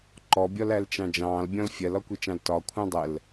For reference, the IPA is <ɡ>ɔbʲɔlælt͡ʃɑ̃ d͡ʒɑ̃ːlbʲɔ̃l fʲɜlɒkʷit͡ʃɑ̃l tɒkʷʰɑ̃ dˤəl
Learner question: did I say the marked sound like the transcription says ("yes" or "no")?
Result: no